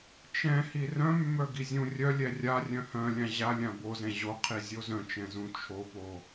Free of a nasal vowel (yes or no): no